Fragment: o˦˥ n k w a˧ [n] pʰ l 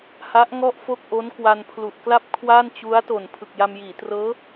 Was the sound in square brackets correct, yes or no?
yes